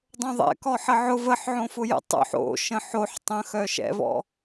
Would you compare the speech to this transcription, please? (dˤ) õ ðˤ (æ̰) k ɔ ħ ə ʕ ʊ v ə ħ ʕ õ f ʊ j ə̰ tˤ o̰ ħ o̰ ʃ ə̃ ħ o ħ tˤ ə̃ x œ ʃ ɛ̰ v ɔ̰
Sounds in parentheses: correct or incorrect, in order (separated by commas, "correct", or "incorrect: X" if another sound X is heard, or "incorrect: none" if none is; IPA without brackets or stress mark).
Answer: correct, incorrect: ɛ̰